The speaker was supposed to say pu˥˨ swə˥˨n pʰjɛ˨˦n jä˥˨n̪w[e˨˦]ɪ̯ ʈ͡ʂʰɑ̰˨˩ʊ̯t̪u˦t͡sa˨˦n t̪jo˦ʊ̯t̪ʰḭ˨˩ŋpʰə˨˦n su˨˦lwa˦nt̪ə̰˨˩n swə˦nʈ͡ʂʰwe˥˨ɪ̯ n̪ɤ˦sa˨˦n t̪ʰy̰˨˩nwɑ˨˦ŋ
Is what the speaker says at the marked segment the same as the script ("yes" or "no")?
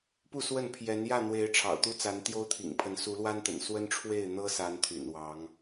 yes